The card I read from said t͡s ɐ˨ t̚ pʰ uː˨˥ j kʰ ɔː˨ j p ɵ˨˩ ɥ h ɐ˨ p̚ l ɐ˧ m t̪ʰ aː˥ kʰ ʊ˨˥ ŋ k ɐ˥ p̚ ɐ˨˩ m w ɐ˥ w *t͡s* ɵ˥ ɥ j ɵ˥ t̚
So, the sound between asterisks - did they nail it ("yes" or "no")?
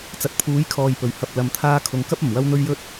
no